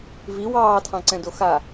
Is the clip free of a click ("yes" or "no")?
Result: no